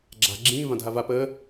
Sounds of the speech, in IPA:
ɡ͡ǁ a̤ ɡ͡ǁ ĩː v ã dʱ a v a p əː

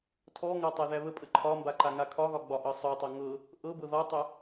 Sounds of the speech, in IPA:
tʰ ɔ ŋ a tˤ æ ð æ β ə pʼ ə ǃʰ ɒ m b a ǃ a ŋ a kʰ ɒ ɣ ɒ ɡ͡b ɒ ʔ ɤ sˤ œ tˤ a ŋ ɤ | ʔ ɤ b ɤ ð ɒ tˤ œ

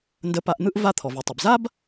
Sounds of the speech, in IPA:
n d ə˧ p a˧ ʔ n̪ ɯ˥ ʔ v a˧ t̪ʰ ɔ˩ v u˩ tˤ ɵ˩ b z a˥ b

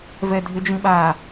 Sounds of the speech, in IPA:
v ɛ dʱ ɪ d͡ʒ ĩ ɓ a

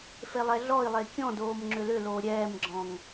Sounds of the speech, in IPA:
f e lˠ ɛ ɮ ɔ i̯ lˠ e kʲ ɔ̃ d oː m ŋ͡ǁ ʏ l ʏ l oː ɾʲ ɛː m ɡ͡ǁ ɔ̃ ŋ

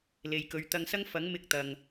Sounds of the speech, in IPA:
l e˨ j k ɵ˨˧ ɥ t̪ ɐ˧ ŋ s ɐ˥ ŋ f ɐ˨˥ ŋ m ɪ˧ k̚ t̪ ɐ˨ ŋ

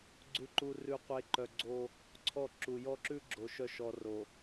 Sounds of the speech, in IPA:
ɡ͡ǀ ʉ˨ ǃ u˨ r ʉ˨ qʷ e˨ ǃ œ˨ ɡ͡ǀ o˦ | ǀʰ ɔ˦˨ ǁ u˨ j ɔ˦ ǁ ʉ˦ ɡ͡ǁ o˨ ʃ œ˦˨ ʃ ɔ˨ r o˨

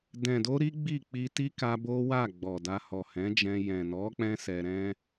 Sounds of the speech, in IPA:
d ɛ̃˨ d o˧ ɾ i˦ ɡ͡b i˦˨ k͡p i˧ t i˦ k a˧ b o˦ w a˦˨ ɡ͡b ɔ˨ d a˧ h ɔ˨ h ɛ̃˨˦ d͡ʒ ɛ̃˧ j ɛ̃˨ n ɔ˨˦ k͡p ɛ̃˧ s ɛ˧ ɾ ɛ̃˦

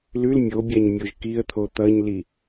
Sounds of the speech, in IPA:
l ʉ l mʲ o bʲ a ɲ mʲ o ʒ k i ə̯ t̪ʰ o t̪ ʌ ɲ l i

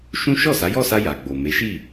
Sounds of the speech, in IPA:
ʃ ũ˦ ʃ ɔ˦˨ s a˨˦ j ɔ˦˨ s a˧ j a˨ ɡ͡b o˨ m e˨˦ ʃ i˦˨

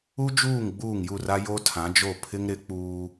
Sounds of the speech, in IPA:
u˦ d͡ʒ uː˦˨ ŋ ɡ͡b uː˦˨ ŋ j u˦˨ r a˦ j o˦ tʰ ã˨˦ d͡ʒ o˦˨ pʰ ɪ˦ ŋ ɾ ɪ˨˦ k͡p uː˦

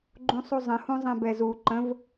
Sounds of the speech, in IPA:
ɡ͡ǃ ũ sˤ u zˤ ə̃ h ũ zˤ ɛ̃ b ɛ z u ǃ ə̃ v

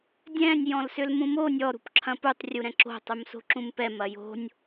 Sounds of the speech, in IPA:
dʲ ɛ̃ nʲ j ɔ̃ l s ʏ l m ũ m o nʲ ɔ ɾ ṳ p ǁʰ ɐ̃ p u tˤ rʲ u ɾ ɛ̃ ǁ o̤ tˤ u m s o̤ ǁ ũ m p ɛ m ɐ j o̤ nʲ

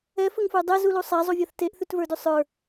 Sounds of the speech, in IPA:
ɛ f ə ŋ f ə˞ dˤ ɛ z u l u sˤ a zˤ u vʲ a θ t e ʔ θ ʉ t v ə˞ d ʉ sˤ ə˞

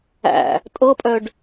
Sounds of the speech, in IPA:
æ̰ | tʼ ɤ pʼ œ ɖ

